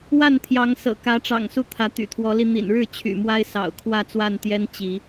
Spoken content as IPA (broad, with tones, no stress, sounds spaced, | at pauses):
w a˥˨ n t̪ʰ j ɑ˨˦ ŋ s ɤ̰˨˩ k ä˨˦ ʈ͡ʂ ɑ̰˨˩ ŋ s u˥˨ t̪ʰ ä˨˦ t̪ y̰˨˩ t̪ʰ w ɔ˨˦ l i˧ n̪ ḭ˨˩ n ɻ ɻ̩˥˨ t͡ɕʰ y̰˨˩ m w a˦ ɪ̯ s ɑ̰˨˩ ʊ̯ kʰ w ä˥˨ t͡s w a˥˨ n t̪ j ɛ˦ n t͡ɕ i˨˦